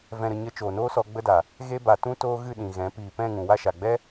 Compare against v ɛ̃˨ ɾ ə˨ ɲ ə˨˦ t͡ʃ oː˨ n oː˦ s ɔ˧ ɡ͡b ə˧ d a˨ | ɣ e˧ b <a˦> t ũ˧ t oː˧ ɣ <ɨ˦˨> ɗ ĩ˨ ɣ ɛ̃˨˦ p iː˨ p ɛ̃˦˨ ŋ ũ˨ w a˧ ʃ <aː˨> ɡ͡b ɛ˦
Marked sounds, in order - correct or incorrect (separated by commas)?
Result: incorrect, correct, incorrect